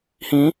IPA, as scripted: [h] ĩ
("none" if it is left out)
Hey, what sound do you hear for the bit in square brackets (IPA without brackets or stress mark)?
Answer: h